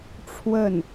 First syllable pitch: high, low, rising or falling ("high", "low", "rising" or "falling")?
falling